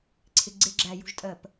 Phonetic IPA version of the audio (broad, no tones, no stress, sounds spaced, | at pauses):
ǀʰ ɪ ɡ͡ǀ ɪ ɡ͡ǁ æ j ṳ ʒ tʼ ɜ p